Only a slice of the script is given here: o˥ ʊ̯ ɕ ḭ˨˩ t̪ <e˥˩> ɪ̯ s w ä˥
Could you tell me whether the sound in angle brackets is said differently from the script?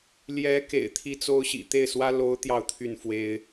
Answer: no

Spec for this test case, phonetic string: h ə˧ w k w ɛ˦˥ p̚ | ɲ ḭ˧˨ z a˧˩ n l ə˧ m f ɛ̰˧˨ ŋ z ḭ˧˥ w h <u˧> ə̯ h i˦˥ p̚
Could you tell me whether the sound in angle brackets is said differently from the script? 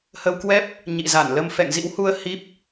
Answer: no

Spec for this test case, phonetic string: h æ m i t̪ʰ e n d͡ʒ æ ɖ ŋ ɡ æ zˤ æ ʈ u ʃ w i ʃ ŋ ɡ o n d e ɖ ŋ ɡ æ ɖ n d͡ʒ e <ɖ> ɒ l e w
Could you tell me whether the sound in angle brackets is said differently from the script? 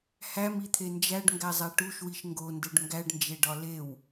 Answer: no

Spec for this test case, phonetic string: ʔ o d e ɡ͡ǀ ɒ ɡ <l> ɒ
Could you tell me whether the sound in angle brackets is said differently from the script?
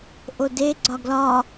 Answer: no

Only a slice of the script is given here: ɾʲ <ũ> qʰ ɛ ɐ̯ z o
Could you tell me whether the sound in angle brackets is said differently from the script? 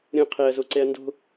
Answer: yes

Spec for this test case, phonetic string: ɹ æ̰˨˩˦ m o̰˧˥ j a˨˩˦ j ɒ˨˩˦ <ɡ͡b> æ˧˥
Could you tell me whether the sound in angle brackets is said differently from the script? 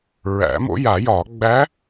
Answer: no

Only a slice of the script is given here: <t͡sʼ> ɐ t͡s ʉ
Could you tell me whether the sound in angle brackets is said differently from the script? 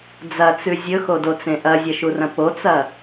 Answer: yes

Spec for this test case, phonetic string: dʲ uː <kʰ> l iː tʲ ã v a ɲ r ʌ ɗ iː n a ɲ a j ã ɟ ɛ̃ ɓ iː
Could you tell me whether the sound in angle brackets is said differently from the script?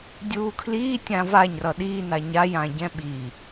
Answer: no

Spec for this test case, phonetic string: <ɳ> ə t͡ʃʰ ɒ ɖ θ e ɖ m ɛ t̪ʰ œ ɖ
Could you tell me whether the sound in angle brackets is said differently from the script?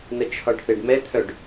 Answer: yes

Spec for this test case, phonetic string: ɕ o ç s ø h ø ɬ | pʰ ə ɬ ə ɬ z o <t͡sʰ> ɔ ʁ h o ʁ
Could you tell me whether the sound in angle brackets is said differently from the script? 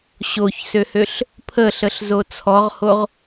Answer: no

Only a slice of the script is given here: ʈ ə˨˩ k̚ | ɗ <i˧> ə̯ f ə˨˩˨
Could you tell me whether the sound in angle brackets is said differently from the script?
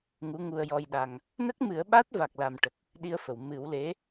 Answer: no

